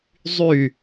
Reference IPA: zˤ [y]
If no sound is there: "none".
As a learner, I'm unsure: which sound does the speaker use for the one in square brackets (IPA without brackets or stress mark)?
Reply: y